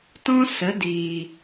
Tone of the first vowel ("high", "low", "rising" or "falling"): high